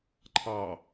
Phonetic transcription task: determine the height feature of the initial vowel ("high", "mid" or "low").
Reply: low